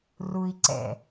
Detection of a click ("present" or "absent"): present